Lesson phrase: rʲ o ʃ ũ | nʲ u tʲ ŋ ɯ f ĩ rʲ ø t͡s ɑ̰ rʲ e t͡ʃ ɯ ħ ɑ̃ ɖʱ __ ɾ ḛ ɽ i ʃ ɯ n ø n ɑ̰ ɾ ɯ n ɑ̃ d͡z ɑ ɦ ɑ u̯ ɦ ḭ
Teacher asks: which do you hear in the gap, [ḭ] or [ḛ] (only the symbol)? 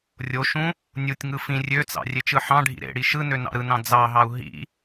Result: ḭ